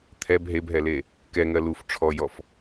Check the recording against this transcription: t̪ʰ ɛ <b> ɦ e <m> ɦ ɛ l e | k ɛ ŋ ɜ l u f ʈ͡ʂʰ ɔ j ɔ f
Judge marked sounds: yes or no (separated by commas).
yes, no